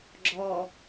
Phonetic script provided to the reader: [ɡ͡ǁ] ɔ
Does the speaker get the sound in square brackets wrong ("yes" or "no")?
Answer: no